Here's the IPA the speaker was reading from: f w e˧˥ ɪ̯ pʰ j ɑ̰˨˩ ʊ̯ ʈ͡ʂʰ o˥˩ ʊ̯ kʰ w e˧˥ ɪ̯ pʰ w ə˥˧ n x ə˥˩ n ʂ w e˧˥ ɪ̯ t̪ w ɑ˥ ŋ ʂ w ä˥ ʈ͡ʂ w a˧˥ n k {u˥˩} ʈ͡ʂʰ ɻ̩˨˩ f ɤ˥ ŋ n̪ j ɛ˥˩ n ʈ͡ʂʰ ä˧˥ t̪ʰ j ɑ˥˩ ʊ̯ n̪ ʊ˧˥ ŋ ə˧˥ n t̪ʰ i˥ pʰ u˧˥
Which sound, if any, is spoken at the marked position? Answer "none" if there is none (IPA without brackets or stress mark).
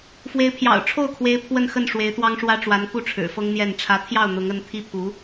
u˥˩